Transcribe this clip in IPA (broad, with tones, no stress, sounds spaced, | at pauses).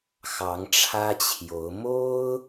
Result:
x ɑ˧˥ ŋ ʈ͡ʂʰ ä˥ t͡ɕʰ j o˧˥ ʊ̯ m o˥ ʊ̯